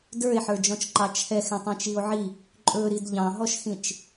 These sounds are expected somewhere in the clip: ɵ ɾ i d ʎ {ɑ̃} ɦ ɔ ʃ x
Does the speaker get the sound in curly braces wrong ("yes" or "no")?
no